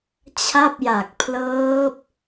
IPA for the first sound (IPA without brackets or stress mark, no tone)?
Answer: t͡ɕʰ